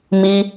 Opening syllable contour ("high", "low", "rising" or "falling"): high